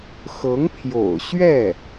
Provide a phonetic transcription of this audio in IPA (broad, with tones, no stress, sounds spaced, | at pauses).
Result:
x ɤ˧˥ ŋ pʰ j o̰˨˩ ʊ̯ ɕ ɥ ɛ˥˩